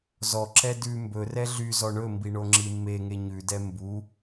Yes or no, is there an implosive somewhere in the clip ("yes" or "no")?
no